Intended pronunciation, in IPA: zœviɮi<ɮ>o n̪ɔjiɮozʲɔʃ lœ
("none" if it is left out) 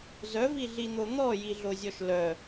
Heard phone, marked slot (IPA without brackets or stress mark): n̪